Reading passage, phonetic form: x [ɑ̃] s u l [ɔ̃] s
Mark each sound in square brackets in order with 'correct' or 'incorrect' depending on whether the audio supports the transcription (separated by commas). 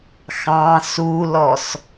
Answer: correct, incorrect